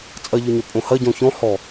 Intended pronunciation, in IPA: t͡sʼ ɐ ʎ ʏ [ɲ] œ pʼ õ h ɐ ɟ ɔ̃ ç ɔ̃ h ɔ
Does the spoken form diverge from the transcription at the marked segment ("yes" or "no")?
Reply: no